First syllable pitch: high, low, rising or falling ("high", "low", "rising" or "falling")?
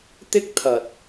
high